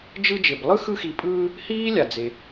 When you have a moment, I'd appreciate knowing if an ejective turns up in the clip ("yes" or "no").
yes